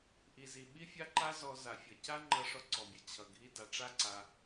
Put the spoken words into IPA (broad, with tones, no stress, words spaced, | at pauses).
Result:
ʔi˧zi˧ ɓi˦ fʲa˦ǃa˦ zɔ˧za˨fʲʌ˨ ca˦ŋ͡ǃʌ˧ ʂɔ˧ǀɔ˨bʲʌ˨ t͡ɕʰʌ˨ ɡʱi˧da˨ ʈ͡ʂa˦ǀa˧